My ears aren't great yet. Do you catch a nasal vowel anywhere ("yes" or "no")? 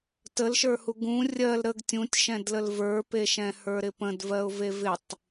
yes